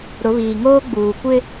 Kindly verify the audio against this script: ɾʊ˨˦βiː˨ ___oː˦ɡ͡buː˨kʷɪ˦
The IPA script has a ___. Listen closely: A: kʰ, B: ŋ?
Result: B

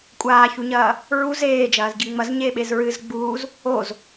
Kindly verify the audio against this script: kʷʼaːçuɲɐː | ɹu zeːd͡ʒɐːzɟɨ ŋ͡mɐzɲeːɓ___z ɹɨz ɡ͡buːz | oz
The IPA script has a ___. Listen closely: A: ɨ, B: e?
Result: B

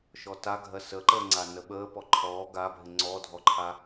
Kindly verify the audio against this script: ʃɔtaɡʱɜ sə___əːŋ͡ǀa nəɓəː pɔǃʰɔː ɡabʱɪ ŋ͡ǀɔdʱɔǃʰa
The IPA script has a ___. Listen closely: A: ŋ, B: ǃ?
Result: B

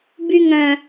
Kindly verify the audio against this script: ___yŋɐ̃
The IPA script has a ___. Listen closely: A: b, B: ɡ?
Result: A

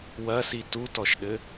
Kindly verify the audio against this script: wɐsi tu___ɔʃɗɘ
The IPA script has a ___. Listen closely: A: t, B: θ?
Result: A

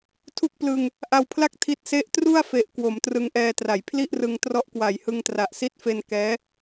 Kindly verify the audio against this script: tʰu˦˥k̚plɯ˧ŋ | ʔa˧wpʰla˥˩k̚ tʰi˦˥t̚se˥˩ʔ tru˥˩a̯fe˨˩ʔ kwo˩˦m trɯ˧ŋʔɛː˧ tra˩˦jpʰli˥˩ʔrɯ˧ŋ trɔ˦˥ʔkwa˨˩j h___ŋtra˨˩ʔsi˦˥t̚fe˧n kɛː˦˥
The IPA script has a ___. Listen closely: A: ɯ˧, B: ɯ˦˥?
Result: A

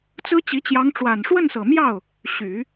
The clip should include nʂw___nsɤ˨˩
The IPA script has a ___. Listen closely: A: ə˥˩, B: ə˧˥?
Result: A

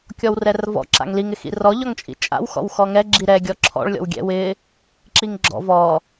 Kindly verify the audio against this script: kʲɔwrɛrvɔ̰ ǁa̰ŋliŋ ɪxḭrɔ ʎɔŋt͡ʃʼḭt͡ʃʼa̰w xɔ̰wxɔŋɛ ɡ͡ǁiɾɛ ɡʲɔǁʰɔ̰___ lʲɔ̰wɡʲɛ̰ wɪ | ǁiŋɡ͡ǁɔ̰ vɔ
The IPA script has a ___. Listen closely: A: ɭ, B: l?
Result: A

